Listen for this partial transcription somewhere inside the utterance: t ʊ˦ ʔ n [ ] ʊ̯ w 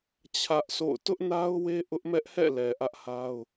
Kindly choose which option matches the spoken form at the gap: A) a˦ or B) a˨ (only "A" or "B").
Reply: A